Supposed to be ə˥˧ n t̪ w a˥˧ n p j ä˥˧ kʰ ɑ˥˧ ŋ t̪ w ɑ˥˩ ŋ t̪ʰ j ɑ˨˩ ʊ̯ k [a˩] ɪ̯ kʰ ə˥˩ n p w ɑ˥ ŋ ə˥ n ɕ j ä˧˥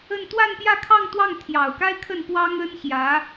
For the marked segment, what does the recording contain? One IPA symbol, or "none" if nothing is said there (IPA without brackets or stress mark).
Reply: a˥